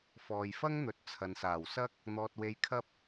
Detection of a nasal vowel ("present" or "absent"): absent